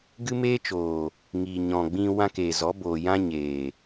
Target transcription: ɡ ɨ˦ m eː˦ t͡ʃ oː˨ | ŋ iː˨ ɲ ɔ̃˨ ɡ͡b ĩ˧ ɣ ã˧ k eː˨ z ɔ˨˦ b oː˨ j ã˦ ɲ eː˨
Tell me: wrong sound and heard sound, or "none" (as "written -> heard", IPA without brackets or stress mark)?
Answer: ɣ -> w